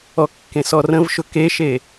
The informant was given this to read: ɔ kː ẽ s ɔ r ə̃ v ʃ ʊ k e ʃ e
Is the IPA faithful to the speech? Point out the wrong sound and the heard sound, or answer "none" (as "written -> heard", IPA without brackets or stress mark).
none